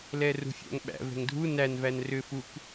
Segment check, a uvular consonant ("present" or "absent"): absent